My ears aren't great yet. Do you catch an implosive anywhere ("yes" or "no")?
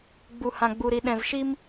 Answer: yes